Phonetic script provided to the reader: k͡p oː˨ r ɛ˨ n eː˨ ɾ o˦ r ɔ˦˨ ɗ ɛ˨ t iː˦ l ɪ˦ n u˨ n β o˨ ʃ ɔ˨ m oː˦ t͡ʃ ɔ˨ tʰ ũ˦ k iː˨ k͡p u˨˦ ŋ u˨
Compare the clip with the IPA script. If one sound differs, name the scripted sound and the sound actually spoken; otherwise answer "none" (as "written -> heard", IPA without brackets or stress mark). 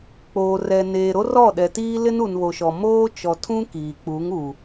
none